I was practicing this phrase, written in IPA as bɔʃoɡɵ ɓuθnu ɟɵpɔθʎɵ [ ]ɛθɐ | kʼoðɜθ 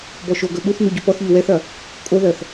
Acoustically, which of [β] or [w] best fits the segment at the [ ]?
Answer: w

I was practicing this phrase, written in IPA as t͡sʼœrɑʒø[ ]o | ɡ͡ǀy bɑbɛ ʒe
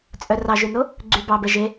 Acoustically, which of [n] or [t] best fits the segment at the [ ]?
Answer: n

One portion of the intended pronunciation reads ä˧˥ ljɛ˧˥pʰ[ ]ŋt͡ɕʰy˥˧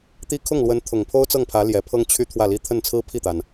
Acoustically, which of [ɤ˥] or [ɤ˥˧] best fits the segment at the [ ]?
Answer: ɤ˥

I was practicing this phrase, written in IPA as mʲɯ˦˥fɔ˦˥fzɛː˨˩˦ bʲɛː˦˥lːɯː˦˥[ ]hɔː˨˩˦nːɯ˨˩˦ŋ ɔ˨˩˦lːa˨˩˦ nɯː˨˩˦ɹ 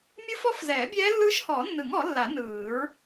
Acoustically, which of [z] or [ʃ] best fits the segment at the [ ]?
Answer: ʃ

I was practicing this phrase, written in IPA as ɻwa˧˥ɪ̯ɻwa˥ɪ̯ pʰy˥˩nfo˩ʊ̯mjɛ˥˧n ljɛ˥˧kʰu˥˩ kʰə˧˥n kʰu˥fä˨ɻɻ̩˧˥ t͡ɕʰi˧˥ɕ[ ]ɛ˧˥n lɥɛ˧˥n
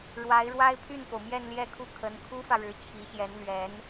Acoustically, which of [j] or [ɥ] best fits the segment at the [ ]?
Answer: j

